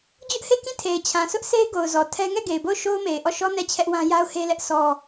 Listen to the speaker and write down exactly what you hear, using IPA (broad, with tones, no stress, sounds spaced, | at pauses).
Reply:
d͡ʑ ʊ˦ ʔ h e˦˨ k ĩ˦˨ tʰ e˨ ɪ̯ t͡ɕʰ ã˨ sʰ ʊ˦ ʔ s e˦ ɪ̯ ɡ o˨ ʊ̯ z ɔ˨ tʰ ɛ˦ ŋ ɛ˦˨ ɡ e˨ ɪ̯ b o˦˨ ʊ̯ ʃ o˦ ʊ̯ m e˨ ɪ̯ ʔ ɔ˦˨ ʃ ɔ˦ n ɛ˦˨ t͡ɕʰ ɛ˦ ʔ w ã˦ j a˦ ʊ̯ h e˦ l ɛ˦ ʔ s ɔ˦